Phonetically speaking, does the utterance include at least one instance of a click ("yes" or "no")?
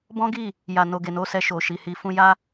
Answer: no